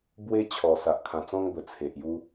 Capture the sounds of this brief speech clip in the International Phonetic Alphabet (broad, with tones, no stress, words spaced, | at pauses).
bwe˦t͡ɕʰɔ˨˩ sa˨ʔkʰã˨˩t͡sɔ̃˦ŋbə˨˩ t͡sʰe˨ʔju˦